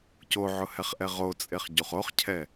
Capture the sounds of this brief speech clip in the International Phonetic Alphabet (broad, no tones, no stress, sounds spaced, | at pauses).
c o ʕ ʊ h ɛ χ ʔ ɛ ʁ o t͡sʼ e χ ɟ u χ o χ cʰ ɛ